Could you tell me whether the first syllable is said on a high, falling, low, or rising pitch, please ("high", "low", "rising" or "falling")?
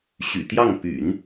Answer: low